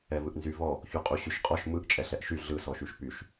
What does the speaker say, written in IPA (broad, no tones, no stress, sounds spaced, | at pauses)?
ɛ v ɯ ʔ n z y v ɔ | ç u qʼ u ɕ y ʃ qʼ ɔ ʃ m ɯ ʔ t͡ʃʼ ɛ ɬ ɛ ʔ ʃ y ɮ ɯ s ɔ ʃ y ʃ p y ʃ